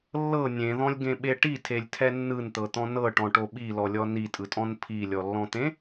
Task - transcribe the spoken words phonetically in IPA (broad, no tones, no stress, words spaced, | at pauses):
lːɤ nʲẽðɔ̃lʲɡẽɓe ʈitʰelʲtʰɛ nːɯnt̪ɤt̪ɔ̃ nɤʈɔ̃ʈo ɓilɔlʲɔ nitʼɯtʼɔ̃n pʰilʲɔlːɔ̃t̪ẽ